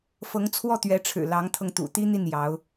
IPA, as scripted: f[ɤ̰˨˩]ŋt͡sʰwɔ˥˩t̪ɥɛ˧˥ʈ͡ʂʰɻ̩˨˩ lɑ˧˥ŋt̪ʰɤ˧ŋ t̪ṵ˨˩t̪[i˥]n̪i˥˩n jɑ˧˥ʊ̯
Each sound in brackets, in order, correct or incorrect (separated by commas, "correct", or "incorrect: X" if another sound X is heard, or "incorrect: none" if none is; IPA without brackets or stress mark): incorrect: ɤ˧˥, correct